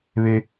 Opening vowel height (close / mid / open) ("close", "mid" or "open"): mid